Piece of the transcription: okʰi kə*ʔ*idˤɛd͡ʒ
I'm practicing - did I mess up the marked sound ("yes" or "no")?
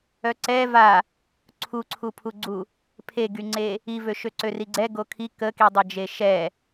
yes